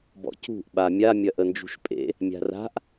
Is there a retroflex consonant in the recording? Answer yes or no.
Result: no